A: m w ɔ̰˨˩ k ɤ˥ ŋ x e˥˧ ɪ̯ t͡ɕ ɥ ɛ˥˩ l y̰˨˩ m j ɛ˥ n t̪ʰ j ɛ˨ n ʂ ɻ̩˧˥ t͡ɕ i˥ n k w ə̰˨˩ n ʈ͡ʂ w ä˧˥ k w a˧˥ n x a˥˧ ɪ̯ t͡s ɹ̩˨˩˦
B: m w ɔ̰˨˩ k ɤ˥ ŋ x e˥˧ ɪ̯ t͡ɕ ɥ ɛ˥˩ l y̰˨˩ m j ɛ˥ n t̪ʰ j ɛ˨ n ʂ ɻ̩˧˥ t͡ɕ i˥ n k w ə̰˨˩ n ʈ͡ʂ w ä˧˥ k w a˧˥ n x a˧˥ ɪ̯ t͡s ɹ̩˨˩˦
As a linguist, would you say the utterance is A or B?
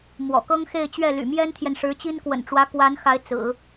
B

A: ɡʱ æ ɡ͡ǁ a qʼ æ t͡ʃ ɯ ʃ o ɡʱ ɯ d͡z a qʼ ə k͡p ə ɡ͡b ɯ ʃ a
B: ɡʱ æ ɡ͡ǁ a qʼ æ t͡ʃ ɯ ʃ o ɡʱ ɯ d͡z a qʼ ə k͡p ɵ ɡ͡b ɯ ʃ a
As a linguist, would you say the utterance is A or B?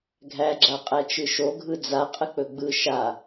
B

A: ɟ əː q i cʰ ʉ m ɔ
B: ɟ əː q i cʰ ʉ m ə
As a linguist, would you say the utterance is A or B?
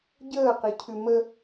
B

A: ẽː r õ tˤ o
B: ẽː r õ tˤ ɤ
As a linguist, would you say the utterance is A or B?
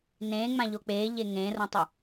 A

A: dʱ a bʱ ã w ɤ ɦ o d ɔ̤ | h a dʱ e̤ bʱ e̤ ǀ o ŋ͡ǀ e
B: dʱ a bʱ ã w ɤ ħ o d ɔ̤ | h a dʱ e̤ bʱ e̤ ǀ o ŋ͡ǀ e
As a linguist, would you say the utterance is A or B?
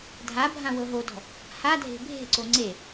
A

